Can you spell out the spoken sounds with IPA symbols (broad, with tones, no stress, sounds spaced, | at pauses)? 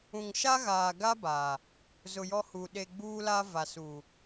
ũ˨ ŋ ʃ a˦ ɣ aː˨ ɡ a˦ b a˨ | z ʊ˨ j ɔ˦ h u˨ ɗ e˨ ɡ͡b uː˦ l a˦ v a˨ s u˨